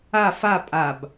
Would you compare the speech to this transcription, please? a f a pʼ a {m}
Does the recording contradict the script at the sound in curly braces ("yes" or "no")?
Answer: yes